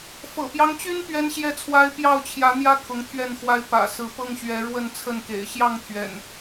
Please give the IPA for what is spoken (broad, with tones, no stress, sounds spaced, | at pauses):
f ɤ̰˨˩ p j ɑ˦ ŋ t͡ɕ y˦ n p ɥ ɛ˦ n ɕ j ɛ˦ t͡sʰ w a˦ ɪ̯ p j ɑ˥˨ ʊ̯ t͡ɕʰ j ä˨˦ n̪ j ä˦ kʰ ʊ˨˦ ŋ t̪ʰ ɥ ɛ˥˨ n x w a˦ ɪ̯ p ä̰˨˩ s ɹ̩˨˦ p ɤ˦ ŋ ɕ ɥ ɛ˨˦ ɻ w ə˥˨ n t͡sʰ ə˥˨ n k ḛ˨˩ ɪ̯ ɕ j ɑ˥˨ ŋ t̪ʰ ɥ ɛ̰˨˩ n